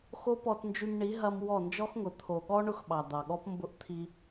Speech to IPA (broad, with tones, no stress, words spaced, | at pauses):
xo˦pɔ˧tnd͡ʒy˧mɳi˨˦ ɦɐ˧m wɔ˦˨nd͡ʒɔ˦xŋʊ˨ t̪ʰo˨ɠɔ˦ ɳʊ˧x ɓɑ˨d̪ɑ˨ɠɔ˦p mbʊ˦ʔ t̪ʰi˧